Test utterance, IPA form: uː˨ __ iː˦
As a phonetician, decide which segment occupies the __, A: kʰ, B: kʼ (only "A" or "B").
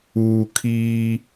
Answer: A